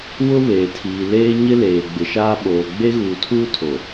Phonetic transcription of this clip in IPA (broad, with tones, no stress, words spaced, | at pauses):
wʊ˦βeː˨tʰiː˨ leː˦ɲɪ˦leː˨ ɡ͡bɪ˨ʃaː˦ɓoː˨ ɡ͡be˦ɣuː˨tʰuː˦ tʰo˨